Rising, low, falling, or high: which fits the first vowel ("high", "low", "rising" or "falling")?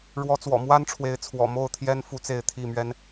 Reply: rising